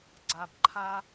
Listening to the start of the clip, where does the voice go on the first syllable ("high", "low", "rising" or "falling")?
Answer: low